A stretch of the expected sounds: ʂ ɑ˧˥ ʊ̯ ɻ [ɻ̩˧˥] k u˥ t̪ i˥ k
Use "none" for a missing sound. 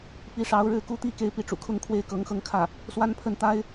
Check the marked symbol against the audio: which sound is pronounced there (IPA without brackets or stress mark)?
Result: ɻ̩˥˩